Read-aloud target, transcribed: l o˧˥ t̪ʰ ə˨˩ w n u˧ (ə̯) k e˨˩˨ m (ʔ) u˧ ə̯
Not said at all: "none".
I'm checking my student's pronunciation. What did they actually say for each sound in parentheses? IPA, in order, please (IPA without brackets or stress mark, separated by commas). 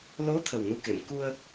none, k